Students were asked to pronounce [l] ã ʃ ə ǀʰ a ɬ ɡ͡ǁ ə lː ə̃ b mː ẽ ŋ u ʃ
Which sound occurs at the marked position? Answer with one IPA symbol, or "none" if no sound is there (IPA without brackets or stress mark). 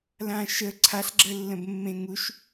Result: l